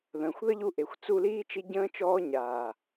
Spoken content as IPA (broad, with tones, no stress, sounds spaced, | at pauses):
ð ə̃ː˨ xʷ ð ə˦ ʎ u˧ ʔ e˨ xʷ t͡s u˧ l iː˦ t͡ʃ i˧ ɟ ə̃ː˧ t͡ʃ ɔː˧ ɲ aː˨